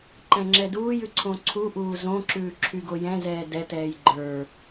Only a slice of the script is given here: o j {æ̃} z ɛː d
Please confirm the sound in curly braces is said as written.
no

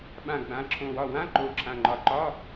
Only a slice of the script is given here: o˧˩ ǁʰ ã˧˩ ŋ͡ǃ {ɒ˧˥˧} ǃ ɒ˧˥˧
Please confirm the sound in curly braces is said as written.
no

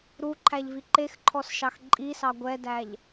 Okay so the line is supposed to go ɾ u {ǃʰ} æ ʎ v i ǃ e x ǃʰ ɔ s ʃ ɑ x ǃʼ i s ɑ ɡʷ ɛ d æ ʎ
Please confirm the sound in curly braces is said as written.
yes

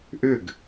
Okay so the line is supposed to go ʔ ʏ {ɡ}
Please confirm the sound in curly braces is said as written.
yes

